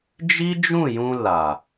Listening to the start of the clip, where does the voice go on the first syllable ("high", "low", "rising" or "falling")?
high